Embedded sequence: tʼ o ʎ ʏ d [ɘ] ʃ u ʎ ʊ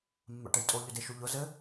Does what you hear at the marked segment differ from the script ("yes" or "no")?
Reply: yes